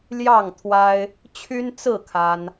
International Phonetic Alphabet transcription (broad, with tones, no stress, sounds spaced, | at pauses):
l j ɑ˥˨ ŋ t̪ʰ w a˦ ɪ̯ | t͡ɕʰ y˦ n t͡s ɹ̩˥˨ kʰ a˦ n